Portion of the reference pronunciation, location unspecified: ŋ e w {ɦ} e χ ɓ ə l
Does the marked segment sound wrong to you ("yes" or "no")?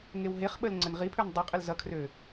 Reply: no